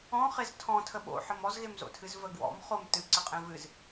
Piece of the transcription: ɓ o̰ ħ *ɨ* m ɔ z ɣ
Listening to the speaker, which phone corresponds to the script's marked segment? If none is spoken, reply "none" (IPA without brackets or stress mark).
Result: ə